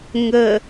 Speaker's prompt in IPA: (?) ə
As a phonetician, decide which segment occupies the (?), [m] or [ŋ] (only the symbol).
ŋ